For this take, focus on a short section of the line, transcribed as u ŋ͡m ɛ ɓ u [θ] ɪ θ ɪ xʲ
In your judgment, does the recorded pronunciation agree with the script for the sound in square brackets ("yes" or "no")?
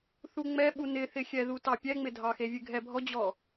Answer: no